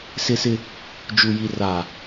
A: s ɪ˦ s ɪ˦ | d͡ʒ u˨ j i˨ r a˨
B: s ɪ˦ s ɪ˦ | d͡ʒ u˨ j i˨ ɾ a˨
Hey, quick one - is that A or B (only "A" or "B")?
A